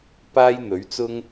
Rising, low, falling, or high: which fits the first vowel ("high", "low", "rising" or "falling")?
high